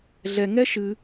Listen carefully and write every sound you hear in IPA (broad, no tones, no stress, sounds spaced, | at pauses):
ɮ ɛ ŋ ɛ ʃ ɨ